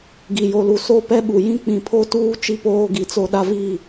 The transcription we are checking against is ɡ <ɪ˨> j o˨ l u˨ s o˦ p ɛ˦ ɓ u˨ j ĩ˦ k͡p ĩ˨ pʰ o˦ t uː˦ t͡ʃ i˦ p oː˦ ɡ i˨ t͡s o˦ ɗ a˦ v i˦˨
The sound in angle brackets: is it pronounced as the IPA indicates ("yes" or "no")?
no